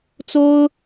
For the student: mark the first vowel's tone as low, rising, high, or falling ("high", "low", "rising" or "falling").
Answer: high